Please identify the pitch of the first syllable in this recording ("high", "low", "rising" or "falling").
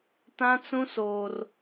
high